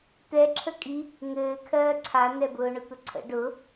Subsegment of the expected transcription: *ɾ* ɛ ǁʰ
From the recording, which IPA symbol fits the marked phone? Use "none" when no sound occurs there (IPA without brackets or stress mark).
t̪